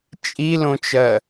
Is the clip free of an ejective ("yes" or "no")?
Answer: no